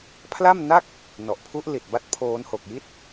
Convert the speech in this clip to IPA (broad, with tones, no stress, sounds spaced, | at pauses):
pʰ l a˥˩ m n a˥˩ k̚ | n ɔ˨˩ ʔ pʰ u˦˥ ʔ l i˨˩ t̚ b a˦˥ t̚ pʰ oː˦˥ n h o˨˩ k̚ j i˥˩ t̚